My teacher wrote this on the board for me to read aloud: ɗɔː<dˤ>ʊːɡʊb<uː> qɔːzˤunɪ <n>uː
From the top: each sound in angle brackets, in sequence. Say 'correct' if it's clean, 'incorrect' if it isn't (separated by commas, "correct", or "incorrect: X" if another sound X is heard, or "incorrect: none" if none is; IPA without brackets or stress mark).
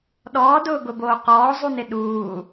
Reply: incorrect: d, incorrect: oː, incorrect: ɗ